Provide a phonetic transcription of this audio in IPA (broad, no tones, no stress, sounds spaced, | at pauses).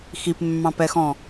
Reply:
x i p mː ɑ̃ p ɛ x ɔ̃